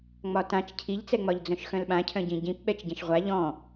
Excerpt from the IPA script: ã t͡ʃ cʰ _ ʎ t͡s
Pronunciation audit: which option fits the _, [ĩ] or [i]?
i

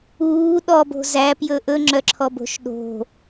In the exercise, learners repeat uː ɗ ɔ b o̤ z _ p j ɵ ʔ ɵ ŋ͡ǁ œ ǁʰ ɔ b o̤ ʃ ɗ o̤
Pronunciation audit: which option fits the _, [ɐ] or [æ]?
æ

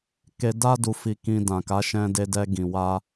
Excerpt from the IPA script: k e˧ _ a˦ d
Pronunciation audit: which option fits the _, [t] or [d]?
d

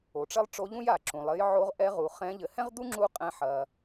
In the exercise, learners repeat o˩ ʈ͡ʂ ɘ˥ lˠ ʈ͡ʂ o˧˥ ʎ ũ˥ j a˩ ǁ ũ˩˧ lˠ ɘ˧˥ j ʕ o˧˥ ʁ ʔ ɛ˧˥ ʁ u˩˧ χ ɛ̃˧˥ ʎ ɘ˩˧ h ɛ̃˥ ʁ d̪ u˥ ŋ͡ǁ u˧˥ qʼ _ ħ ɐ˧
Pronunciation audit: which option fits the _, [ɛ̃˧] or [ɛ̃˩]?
ɛ̃˧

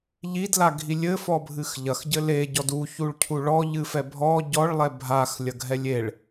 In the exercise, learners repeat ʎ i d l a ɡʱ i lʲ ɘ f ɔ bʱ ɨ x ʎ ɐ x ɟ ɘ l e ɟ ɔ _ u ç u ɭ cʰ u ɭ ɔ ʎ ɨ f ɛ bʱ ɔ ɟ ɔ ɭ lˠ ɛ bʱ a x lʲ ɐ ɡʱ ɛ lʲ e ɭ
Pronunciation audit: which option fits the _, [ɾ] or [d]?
d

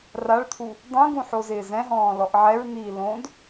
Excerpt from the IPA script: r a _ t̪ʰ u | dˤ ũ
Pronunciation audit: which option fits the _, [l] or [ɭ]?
ɭ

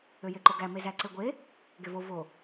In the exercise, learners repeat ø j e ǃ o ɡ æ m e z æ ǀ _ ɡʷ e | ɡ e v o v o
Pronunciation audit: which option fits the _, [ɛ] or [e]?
e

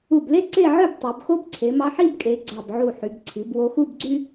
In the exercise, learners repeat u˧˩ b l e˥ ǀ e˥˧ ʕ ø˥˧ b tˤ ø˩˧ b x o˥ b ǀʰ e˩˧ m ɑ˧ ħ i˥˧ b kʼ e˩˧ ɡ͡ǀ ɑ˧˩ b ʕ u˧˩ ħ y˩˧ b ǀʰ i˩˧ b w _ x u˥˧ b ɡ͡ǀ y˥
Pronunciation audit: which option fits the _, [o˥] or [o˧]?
o˧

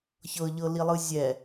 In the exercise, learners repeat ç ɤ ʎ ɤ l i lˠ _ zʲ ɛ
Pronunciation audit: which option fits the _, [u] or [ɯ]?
ɯ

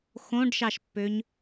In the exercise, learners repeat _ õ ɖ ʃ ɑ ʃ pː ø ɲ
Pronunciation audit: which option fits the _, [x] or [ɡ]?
x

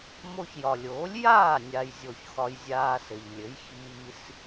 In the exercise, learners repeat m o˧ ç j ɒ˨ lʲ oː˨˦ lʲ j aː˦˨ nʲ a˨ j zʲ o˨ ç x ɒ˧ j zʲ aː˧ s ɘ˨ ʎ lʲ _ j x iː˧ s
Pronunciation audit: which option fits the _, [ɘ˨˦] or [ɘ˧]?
ɘ˨˦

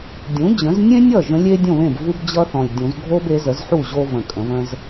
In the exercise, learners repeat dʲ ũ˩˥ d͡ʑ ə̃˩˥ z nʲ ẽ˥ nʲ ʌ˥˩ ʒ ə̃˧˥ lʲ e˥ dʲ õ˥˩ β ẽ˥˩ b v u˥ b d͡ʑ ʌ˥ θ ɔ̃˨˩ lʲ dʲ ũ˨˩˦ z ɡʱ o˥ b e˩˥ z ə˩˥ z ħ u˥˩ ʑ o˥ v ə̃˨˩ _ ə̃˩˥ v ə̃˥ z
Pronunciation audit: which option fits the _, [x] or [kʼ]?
kʼ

